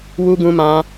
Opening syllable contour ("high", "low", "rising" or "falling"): high